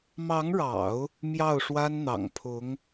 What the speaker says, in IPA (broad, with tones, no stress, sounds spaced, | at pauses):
m ɑ˧˥ ŋ ɻ ɑ̰˨˩˦ ʊ̯ | m j ɑ˥˩ ʊ̯ ʂ w a˥ n n̪ ɑ̰˨˩ ŋ pʰ ʊ˧˥ ŋ